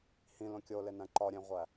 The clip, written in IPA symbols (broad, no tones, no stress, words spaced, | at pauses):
hĩlõ kʲolenæ̃ ǃɒɾʲẽʁʷæ